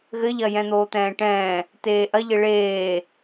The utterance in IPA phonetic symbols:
ɣ ɘ ʎ ɐ j ɛ̃ n̪ oː t̪ ɛ̃ː ʈ ɛ̃ː | t eː ʔ ɐ ʎ ɘ ɭ eː

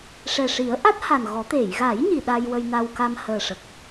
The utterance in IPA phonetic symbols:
ʂ ɛ˨˩ ʂ i˨˩˦ ə̯ ʔ a˦˥ t̚ h a˨˩ n ɣ ɔ˨˩˦ t̪ e˨˩˨ j ɣ a˨˩˦ j ɲ i˨˩˨ ɗ a˧ j w ə˧ j n a˧ w k a˧ m h əː˨˩ ʂ ə˨˩ k̚

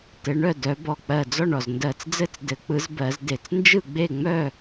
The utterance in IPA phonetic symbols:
t ɘ˨˦ ɳ œ˥˨ d œ˨˦ b ɔ˧˩ k͡p ɜ˧˩ d͡z ɔ˥˨ ɳ ɔ˧˩ z n d ɜ˧˩ t͡s d͡z ɘ˥˨ t͡s d ɘ˨˦ k͡p ɯ˨˦ z b ɜ˨˦ z d e˧˩ t͡s n d͡ʒ ɯ˥˨ ɡ͡b e˥˨ ŋ͡m œ˥˨

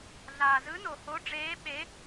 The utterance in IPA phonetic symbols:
ɮ aː˨ z ɯ˧˥ n o˨ h o˧˥ ɖ͡ʐ eː˧˥ ɓ e˧˥

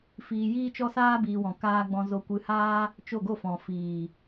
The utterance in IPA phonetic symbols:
f iː˧ j iː˦ t͡ʃ ɔ˦ s aː˦ b iː˧ w ɔ̃˨ k aː˦ ɡ͡b ɔ̃˧ z o˧ kʷ ɨ˧ h aː˦ | t͡ʃ o˦˨ ɡ o˦˨ f ɔ̃˨ f iː˨

